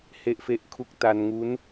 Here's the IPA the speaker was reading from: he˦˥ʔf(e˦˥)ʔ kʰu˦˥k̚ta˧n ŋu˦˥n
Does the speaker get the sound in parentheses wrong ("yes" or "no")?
no